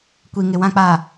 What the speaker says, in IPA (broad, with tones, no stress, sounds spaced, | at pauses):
kʷ i˨ ŋ ɪ˨ w ã˨ k͡p aː˨